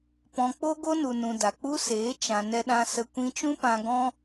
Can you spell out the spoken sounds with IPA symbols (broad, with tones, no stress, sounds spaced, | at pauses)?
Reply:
p ɔ̃˧ k͡p o˦ ɡ o˦ n u˨ n ũ˨ d a˨ k͡p u˦ s eː˨˦ t͡ʃ ã˨ n ɛ˧ ɗ ã˧ s ə˧ kʷ ĩ˧ t͡ʃ ũ˦ p ã˧ ɡ ɔ̃˦